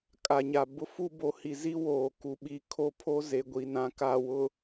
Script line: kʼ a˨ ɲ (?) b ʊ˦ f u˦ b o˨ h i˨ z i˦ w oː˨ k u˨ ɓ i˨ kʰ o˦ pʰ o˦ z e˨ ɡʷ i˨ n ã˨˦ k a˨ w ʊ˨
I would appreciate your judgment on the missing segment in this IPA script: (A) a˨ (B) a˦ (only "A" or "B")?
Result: A